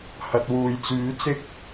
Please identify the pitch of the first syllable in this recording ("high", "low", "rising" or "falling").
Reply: low